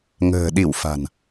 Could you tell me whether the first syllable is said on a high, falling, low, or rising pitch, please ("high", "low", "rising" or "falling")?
low